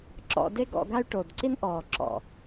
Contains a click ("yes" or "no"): yes